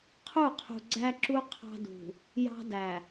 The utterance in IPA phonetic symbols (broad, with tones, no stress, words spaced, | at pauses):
qʰu˦˨qʰṳ˨ɡ͡ǀæ˦ǁu˦ qʰɑ̤˦dṳ˨ | jɑ̤˦dæ˨